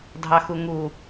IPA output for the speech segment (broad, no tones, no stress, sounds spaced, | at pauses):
dʱ ɑ x u ŋ u